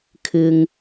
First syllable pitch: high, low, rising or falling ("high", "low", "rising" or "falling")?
low